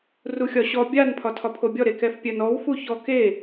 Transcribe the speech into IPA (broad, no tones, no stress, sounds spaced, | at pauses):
r u xʲ ɒ ɕ ɔ bʲ a n pʰ ɒ tʰ ɒ pʰ o bʲ ɔ ɾ e k ɛ f pʲ œ n ɔ w f u ç ɔ k e